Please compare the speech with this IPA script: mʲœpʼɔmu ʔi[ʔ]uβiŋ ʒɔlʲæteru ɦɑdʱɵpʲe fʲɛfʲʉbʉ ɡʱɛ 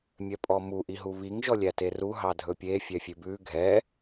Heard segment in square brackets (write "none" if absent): ɦ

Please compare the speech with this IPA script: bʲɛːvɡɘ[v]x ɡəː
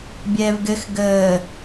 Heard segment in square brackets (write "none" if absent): none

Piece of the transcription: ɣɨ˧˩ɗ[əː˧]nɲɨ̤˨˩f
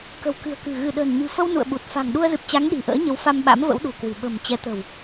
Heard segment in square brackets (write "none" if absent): ə̤ː˨˩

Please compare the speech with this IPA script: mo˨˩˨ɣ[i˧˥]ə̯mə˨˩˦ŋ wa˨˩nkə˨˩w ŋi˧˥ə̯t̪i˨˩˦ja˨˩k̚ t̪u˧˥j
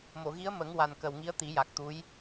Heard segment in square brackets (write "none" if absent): i˧˥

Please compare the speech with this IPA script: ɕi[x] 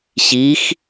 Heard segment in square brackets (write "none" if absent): x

